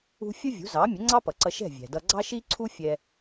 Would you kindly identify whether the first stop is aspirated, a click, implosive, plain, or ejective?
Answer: click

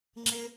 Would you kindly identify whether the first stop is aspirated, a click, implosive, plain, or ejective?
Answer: click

